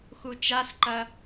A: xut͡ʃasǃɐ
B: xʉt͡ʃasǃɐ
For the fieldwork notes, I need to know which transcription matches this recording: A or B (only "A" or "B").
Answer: A